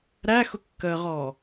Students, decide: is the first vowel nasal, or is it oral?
oral